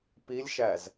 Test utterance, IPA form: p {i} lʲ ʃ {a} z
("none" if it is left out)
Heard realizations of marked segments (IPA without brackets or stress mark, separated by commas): i, æ